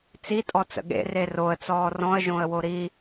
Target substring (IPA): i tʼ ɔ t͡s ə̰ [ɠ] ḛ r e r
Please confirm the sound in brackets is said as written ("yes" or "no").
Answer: yes